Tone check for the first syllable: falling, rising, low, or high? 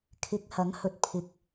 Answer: rising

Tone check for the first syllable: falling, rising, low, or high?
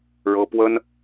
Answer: high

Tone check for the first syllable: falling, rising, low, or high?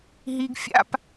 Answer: high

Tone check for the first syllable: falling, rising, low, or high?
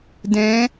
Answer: rising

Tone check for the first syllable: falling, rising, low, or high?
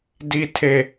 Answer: high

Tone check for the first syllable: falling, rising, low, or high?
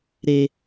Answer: low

